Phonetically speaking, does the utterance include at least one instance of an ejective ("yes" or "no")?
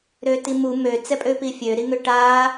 yes